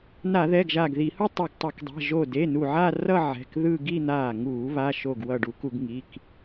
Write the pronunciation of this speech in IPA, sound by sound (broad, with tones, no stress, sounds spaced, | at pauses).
n a˧˩˧ ð ɛ˩˧˩ ɡ ʒ a˧˩ ɡ ð i˧˩˧ h u˥˧ tˤ e˧˩ ɡ tˤ o˧˩˧ k dˤ ɛ̤˩˧˩ ʒ o˧˩ d e˩˧˩ n u˧˩ ʕ a˥˧ r ʌ˥˧ ʕ ɛ̤˩˧˩ k ð ɯ˥˧ ɡ i˥˧ n̪ aː˧˩ ŋ uː˧˩˧ β a˩˧˩ ʃ o˧˩ ɡ w ʌ˧˩ ɖ u˧˩˧ k u˧˩˧ ɡ ŋ i˩˧˩ k